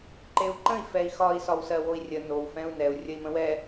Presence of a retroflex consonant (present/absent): absent